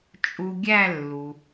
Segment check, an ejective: present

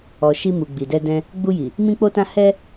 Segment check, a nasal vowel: present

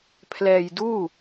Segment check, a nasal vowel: absent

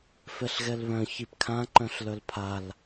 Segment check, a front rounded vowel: present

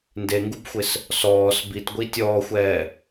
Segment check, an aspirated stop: absent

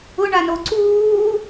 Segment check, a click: present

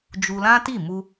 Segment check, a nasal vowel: present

